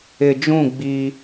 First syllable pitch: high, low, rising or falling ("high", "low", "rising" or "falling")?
low